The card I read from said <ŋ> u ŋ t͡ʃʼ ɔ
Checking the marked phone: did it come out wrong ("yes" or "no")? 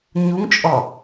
yes